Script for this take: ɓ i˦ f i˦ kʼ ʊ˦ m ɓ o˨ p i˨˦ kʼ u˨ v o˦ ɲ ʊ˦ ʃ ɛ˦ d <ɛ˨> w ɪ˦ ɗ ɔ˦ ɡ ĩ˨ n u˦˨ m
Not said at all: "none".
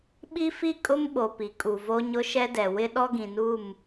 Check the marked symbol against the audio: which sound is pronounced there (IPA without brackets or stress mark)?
ɛ˨